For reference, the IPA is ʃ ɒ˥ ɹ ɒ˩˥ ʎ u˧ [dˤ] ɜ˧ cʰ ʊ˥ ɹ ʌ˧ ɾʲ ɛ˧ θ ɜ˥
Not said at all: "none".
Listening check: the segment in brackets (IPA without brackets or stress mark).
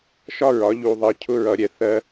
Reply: ðˤ